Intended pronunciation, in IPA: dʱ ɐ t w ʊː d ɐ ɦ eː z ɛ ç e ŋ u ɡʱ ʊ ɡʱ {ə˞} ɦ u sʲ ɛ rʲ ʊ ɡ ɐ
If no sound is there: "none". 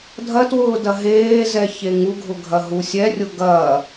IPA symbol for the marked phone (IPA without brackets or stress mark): ɐ